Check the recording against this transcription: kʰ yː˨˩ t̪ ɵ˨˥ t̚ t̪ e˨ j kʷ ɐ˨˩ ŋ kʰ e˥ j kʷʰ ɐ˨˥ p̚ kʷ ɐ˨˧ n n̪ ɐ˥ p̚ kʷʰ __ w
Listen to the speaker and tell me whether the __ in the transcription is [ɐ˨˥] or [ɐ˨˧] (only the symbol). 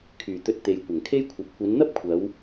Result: ɐ˨˧